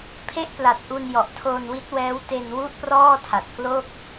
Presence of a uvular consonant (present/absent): absent